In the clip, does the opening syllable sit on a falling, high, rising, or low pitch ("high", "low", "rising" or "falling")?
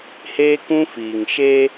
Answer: high